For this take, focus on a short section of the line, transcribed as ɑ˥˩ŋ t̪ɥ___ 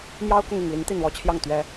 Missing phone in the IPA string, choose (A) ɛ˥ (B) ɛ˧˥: A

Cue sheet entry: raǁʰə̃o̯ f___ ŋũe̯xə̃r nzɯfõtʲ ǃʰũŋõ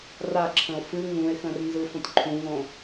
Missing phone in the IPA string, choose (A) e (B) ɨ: B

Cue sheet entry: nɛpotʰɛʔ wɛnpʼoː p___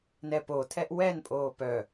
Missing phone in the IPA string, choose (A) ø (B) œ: B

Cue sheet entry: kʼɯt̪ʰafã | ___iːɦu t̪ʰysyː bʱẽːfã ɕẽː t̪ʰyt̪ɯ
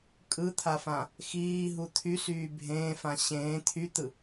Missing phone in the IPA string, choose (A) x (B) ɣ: A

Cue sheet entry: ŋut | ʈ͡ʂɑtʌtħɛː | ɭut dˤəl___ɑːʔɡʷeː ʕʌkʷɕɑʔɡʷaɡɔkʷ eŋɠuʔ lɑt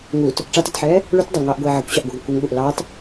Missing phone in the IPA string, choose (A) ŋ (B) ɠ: A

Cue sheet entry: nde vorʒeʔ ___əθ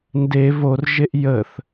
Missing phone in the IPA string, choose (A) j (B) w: A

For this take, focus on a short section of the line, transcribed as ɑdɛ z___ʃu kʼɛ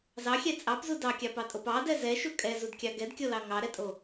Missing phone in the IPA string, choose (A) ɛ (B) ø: A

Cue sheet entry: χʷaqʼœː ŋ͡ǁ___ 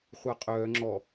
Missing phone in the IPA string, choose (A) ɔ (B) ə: A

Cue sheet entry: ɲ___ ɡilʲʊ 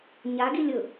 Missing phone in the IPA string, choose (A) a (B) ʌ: A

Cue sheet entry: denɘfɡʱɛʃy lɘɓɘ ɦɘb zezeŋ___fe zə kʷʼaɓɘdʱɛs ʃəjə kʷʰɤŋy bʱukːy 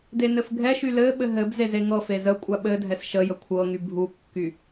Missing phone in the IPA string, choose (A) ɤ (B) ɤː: A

